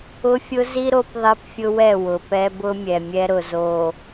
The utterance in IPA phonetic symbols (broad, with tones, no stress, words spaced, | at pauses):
ʊ˦fʲʊ˦zi˦ ɾo˦pðˤi˦pfʲʊ˦wɛ˦˨ wʊ˨pɛ˦bʊ˦mʲɛ˨ mʲɛ˦ɾʊ˨z o˨